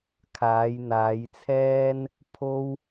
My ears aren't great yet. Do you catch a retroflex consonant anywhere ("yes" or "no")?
no